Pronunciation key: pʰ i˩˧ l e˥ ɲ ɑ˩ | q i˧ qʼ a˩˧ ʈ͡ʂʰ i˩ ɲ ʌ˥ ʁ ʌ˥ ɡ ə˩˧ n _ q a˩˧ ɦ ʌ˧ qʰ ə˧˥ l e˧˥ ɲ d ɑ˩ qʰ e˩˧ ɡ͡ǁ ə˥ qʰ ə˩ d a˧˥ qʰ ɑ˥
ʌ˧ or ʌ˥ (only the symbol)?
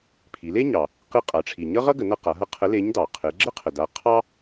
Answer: ʌ˧